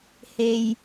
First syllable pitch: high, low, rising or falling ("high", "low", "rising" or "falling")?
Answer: low